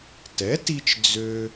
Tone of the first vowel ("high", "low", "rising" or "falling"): rising